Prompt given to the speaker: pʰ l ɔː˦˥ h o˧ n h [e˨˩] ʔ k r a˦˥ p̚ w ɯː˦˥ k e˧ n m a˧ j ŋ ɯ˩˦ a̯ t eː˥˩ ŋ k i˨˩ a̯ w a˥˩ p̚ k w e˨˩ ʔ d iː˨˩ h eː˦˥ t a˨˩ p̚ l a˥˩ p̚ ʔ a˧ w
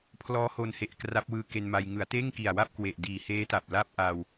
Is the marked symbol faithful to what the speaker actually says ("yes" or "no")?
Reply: yes